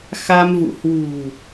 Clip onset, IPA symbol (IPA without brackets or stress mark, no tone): x